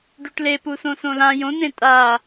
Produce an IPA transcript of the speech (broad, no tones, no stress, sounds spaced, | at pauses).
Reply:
ɖ u ʈ l e p u s õ s õ l ã j õ n ẽ tʼ a